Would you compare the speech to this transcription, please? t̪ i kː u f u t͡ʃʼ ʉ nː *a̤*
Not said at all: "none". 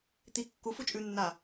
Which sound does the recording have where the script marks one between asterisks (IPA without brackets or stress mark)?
a